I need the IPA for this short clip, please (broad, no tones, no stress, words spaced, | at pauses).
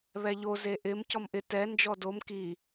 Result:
βɛʎo zeʔɪm cɔmʔɪ tɛ nd͡ʒɔdom ki